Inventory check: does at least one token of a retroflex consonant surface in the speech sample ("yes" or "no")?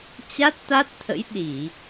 no